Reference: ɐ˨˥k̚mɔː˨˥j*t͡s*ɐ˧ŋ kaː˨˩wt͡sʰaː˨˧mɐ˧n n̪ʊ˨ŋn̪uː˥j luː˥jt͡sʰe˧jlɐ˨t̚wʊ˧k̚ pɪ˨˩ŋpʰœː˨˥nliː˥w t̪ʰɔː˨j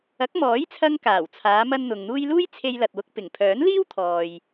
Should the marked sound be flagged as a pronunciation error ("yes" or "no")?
yes